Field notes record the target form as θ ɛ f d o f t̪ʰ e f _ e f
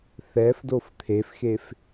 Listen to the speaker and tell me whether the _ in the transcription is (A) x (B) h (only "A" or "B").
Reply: A